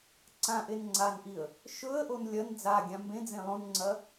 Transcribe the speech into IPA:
ǀ ã ʔ e n ŋ͡ǀ a n ʔ i ə̯ | ʃ ɵ ə̯ ʔ o n lʲ ɐ n d͡z a ɡʲ ã m b ẽ d͡z ẽ lˠ õ n ŋ͡ǀ ɐ

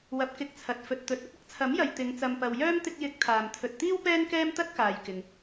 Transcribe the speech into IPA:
w ɐ˧ p̚ k ɪ˧ k̚ t͡sʰ ɐ˨ t̚ f ɵ˨ t̚ t̪ ɵ˨˥ t̚ ɐ˥ p̚ ɐ˥ k̚ t͡sʰ ɐ˨˥ m j ɐ˨ j t̪ ɪ˨˧ ŋ t͡s ɐ˨ m p ɐ˨ w j œː˥ m t̪ ɪ˧ k̚ j ɪ˨˥ k̚ t̪ʰ aː˨ m t̪ʰ ɵ˧ t̚ t̪ iː˥ w p ɛː˥ n k ɛː˥ m t̪ ɐ˥ t̚ k aː˨ j k ɪ˨ ŋ

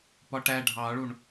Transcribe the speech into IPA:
p ɒ ʈ æ ɖʱ ɑ ɭ u ɳ

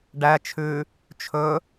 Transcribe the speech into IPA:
ɖ æ t͡ʃʰ ʉ | t͡ʃʰ ɵ

